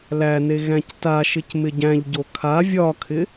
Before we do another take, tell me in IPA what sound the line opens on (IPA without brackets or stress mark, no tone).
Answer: l